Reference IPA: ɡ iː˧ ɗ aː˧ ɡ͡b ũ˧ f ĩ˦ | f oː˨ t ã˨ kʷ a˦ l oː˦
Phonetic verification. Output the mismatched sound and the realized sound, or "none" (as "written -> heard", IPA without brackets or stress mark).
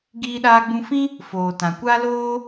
none